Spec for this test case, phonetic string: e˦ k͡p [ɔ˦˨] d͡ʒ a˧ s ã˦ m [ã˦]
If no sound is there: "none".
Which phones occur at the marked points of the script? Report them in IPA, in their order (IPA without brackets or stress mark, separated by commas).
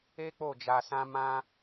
o˦˨, ã˦